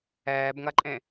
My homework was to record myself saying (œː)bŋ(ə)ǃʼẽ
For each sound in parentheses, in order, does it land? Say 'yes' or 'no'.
no, no

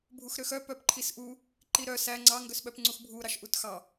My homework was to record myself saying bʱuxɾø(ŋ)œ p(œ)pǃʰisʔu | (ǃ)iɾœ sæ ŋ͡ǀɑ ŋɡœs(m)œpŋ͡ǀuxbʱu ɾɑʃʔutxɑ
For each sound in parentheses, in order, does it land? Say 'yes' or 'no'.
no, yes, yes, no

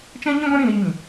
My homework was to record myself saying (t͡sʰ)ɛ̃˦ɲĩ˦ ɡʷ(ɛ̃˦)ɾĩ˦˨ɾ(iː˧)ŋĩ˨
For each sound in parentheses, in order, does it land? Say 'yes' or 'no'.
no, yes, yes

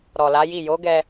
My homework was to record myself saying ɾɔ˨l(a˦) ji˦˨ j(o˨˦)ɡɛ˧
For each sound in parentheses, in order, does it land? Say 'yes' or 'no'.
no, yes

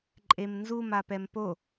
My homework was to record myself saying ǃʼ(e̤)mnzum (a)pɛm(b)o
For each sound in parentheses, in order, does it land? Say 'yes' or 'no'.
no, yes, no

